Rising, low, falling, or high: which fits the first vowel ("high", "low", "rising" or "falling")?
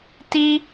high